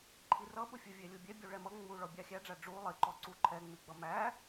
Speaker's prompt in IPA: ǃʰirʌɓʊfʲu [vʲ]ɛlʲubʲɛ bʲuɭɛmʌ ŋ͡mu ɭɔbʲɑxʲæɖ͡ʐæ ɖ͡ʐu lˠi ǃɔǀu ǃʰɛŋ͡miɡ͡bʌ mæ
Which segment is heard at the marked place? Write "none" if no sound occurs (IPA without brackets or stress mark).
vʲ